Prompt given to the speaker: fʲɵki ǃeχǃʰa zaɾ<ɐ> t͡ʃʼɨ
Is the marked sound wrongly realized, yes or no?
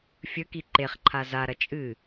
no